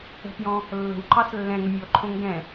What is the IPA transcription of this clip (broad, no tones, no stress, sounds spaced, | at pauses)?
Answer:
ə̤ p j ɔ̃ | lː ə̤ w ǃ ɑ s lː ɛ̃ ŋ ə mʲ ɔ ǃʰ õ ŋ ɡ ɛ̃